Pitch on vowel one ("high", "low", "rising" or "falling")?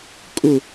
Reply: falling